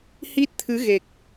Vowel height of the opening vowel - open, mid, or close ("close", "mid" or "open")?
close